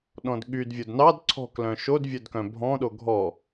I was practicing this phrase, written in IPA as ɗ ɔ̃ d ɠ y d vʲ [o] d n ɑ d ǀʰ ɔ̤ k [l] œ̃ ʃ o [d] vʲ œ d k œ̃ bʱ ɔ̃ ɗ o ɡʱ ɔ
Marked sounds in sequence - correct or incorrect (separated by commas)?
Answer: correct, correct, correct